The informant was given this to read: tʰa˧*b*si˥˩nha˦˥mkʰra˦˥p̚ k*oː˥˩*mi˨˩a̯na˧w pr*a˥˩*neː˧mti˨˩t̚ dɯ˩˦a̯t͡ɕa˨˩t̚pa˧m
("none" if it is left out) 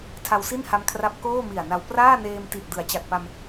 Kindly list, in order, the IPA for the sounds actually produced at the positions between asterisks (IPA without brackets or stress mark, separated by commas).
w, oː˥˩, aː˥˩